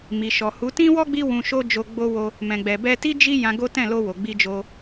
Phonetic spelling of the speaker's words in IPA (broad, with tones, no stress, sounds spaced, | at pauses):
m i˨ ʃ ɔ˨ h u˨˦ t ĩ˦ w ɔ˦ ɡ͡b i˦ w ũ˧ ʃ o˦ d͡ʒ o˧ ɡ͡b o˧ w o˧ | m ɛ̃˨ ɡ͡b ɛ˨ b ɛ˧ t i˦ d͡ʒ i˦ j ã˧ ɡ o˦ t ɛ̃˦˨ l o˧ w o˨ ɡ͡b i˧ d͡ʒ o˧